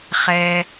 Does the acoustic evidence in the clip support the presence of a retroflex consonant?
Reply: no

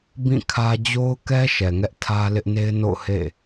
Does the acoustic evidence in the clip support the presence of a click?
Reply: no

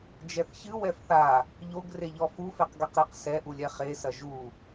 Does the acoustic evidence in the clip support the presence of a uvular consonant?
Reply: yes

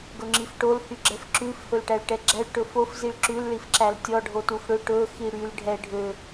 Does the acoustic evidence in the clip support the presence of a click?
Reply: yes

